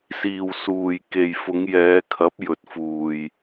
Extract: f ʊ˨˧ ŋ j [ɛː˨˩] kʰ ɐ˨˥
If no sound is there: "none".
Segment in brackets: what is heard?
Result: ɛː˨˧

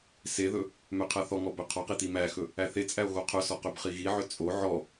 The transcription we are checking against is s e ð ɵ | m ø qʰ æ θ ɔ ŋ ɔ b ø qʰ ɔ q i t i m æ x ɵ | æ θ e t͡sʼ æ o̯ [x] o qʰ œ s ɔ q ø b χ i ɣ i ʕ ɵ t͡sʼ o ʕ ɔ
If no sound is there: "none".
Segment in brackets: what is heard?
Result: ɣ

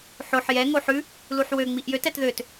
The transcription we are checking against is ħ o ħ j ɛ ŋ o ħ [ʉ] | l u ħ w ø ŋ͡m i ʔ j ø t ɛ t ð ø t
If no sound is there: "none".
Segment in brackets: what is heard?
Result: ʉ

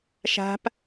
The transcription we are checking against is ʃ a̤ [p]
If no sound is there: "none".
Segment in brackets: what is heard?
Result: p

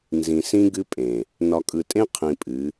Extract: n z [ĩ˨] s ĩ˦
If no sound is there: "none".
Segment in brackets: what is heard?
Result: ĩ˨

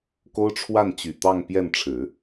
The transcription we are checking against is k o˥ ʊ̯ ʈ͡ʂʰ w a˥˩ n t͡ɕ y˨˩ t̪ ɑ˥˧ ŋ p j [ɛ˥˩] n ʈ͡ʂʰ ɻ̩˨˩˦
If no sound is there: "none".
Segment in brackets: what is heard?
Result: ɛ˥˩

